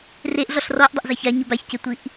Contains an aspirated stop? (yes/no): no